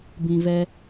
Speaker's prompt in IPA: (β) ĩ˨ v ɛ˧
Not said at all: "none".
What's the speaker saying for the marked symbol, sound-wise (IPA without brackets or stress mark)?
b